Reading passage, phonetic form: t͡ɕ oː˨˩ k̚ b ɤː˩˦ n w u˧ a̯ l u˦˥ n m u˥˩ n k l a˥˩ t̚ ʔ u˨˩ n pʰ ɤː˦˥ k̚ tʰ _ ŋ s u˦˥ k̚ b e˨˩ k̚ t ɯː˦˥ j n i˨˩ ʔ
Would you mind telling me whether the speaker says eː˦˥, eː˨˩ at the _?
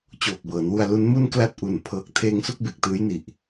eː˦˥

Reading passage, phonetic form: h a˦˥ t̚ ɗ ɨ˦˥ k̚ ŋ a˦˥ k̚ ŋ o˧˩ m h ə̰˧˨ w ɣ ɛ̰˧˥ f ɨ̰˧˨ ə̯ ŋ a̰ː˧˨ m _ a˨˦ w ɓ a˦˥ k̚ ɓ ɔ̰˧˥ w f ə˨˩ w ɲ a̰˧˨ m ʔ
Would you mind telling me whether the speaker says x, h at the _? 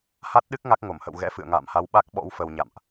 h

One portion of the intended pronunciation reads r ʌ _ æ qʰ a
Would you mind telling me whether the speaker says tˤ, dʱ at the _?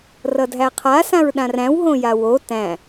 dʱ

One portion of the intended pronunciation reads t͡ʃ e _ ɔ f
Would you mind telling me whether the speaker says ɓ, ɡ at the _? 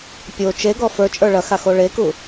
ɡ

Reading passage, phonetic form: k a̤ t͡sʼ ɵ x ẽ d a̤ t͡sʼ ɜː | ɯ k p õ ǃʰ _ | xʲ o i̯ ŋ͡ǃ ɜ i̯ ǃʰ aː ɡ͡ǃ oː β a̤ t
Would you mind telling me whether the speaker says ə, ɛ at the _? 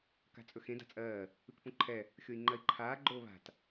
ɛ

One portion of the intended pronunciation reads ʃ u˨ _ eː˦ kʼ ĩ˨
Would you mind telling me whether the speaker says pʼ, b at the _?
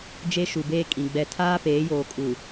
b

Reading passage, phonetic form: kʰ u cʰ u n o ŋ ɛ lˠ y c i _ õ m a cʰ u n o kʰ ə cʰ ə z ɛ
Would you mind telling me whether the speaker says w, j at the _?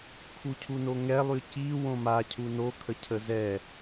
w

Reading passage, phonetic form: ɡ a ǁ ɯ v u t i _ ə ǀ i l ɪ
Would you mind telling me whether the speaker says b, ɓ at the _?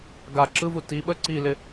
ɓ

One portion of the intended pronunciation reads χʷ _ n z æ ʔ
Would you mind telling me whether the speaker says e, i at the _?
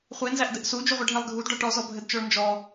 e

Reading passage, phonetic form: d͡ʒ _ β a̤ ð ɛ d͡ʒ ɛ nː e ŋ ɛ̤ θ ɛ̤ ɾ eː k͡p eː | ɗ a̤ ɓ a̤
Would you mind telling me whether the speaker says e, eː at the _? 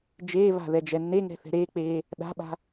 eː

